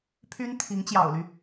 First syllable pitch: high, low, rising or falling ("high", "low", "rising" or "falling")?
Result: high